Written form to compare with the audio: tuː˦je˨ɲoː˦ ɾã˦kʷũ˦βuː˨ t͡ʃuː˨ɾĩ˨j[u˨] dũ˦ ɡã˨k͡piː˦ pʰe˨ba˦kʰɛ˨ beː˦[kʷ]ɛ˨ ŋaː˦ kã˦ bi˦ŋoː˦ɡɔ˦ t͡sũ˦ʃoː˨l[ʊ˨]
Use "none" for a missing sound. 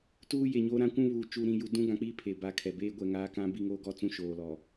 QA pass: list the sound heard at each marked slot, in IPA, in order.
u˨, ɡʷ, ɔ˨

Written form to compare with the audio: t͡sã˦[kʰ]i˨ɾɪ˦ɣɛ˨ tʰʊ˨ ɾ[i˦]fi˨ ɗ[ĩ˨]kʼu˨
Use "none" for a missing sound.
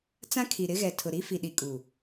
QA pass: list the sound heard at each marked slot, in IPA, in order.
kʰ, i˦, i˨

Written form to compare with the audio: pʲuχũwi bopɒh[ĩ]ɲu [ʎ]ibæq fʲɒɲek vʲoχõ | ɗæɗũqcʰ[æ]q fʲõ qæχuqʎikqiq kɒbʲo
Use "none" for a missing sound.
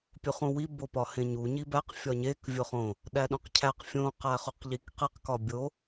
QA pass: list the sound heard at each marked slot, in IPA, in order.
ẽ, ɲ, æ

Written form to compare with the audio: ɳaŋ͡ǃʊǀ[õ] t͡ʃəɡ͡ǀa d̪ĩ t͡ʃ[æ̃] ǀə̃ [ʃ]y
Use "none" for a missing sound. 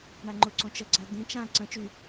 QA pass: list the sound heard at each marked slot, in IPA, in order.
õ, ã, t͡ʃ

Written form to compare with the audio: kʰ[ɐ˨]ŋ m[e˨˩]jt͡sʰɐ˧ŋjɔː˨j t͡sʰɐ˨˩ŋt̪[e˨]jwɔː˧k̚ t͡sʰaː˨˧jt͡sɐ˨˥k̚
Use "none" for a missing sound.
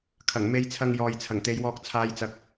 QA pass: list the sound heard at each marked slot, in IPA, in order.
ɐ˨˩, e˧, e˨˧

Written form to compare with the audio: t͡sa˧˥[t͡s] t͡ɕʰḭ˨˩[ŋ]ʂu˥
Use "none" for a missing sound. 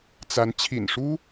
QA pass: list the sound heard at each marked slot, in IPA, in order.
n, n

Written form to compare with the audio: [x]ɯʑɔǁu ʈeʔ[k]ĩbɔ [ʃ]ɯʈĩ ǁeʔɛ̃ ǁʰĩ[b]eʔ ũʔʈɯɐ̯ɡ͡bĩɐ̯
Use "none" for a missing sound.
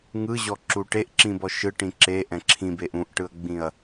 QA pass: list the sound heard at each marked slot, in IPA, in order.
ŋ, ǁ, ʃ, b

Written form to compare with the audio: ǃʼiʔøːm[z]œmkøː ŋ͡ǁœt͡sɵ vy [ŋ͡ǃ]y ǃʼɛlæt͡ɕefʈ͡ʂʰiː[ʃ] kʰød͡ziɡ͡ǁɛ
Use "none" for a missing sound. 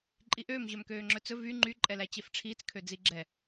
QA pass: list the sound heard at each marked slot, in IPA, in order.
ʑ, ŋ͡ǃ, t͡s

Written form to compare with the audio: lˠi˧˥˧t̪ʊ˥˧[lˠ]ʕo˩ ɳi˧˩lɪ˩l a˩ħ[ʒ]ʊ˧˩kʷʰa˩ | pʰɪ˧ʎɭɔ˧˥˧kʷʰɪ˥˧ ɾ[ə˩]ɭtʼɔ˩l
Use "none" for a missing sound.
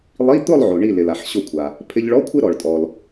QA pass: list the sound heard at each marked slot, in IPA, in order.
lˠ, ɕ, ɔ˩

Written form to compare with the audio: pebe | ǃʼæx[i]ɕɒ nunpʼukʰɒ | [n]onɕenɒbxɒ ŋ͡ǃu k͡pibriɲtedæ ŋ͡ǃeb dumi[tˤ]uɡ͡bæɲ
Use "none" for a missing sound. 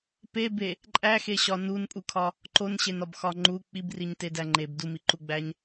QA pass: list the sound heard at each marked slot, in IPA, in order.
e, ǃ, ǃ

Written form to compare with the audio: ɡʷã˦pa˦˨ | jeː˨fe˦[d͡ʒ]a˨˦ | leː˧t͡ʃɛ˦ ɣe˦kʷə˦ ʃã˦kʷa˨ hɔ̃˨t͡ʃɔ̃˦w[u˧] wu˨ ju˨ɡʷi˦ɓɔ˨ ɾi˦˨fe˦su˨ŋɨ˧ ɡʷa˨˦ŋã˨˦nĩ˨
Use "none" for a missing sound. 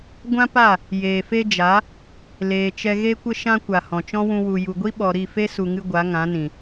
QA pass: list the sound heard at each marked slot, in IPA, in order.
d͡ʒ, ũ˧

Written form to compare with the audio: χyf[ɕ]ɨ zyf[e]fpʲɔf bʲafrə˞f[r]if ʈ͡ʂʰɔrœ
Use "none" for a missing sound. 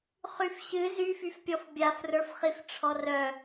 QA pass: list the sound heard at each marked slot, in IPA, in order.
ɕ, y, χ

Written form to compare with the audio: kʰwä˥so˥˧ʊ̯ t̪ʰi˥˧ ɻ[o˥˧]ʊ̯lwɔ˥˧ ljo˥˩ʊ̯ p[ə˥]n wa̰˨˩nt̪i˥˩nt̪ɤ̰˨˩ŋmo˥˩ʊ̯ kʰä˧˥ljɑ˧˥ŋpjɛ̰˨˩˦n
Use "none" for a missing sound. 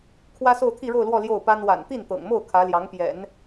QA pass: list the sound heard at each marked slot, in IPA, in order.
o˥˧, a˥

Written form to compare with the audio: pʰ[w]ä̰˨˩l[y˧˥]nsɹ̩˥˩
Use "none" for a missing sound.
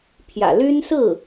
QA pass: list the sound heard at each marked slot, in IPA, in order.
j, y˥

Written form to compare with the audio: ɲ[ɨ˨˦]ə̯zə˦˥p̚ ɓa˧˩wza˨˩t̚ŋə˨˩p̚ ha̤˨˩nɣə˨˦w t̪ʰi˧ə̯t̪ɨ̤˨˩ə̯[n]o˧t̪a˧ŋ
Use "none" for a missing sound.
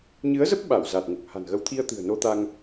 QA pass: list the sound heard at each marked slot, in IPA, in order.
ɨ˨˦, n

